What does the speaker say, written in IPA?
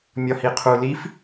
mʲ ɒ h i qʰ u l i f

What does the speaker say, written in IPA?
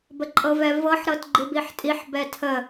b ə ǃʼ ɤ v ɛ v ɤ ħ ɾ ɤ t ɡ͡ǃ i b i ħ tʼ i ħ b ɛ tʰ ə

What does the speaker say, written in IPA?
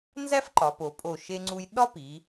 n z æ˥ f ǃ ɒ˩˧ p o˩˧ pʼ o˧˩ ʃ e˧ ŋ͡ǀ u˧ j ɗ ɒ˥ p i˩˧

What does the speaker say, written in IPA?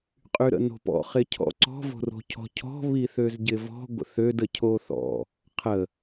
qʼ y ɾ ə̰ n o̤ p ɔ̰ χ ɪ cʰ ɔ̰ ǀ ɔ̤ v o̤ r o̤ cʰ ɔ̤ cʰ ɔ̤ β i θ ø z ɟ ɪ v ɔ̤ ɡʷ ə̰ θ ø d ə cʰ o θ ɔ̰ | qʰ ə

